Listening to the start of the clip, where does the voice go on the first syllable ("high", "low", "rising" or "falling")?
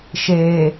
low